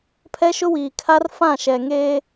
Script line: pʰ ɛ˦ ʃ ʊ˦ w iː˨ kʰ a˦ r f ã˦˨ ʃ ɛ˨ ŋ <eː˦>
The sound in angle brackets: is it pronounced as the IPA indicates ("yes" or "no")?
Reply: yes